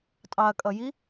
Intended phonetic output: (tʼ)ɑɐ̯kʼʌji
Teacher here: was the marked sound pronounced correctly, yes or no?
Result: yes